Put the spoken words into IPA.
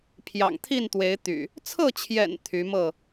pʰ j ɑ̰˨˩ ŋ t̪ʰ i˥˨ n t̪ w e˨˦ ɪ̯ t̪ y̰˨˩ | t͡sʰ ɤ˥˨ t͡ɕʰ j ɛ̰˨˩ n t̪ʰ y˨˦ m ɤ˥˨

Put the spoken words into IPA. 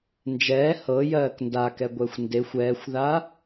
n d͡ʒ ɛː h ɤ j ɜː k n d a k ɛ ɡʷ ɛ xʷ n d e xʷ ɛː xʷ ð a

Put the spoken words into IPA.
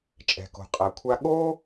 t͡ʃʼ ɛ̤˩ k o̤˩ qʼ a˩ kʷʰ a˧ ɠ oː˥

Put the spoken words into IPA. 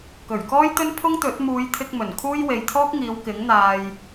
k ɵ˨˩ ɥ k ɔː˥ j t̪ ɵ˥ n pʰ ʊ˥ ŋ t̪ ɵ˨˥ t̚ m uː˨˧ j t̪ʰ ɪ˧ k̚ m ɵ˨˩ n kʰ uː˥ j w e˨ j t̪ʰ ɔː˥ k̚ ŋ iː˨˧ w k ɪ˨˥ ŋ n̪ aː˧ j

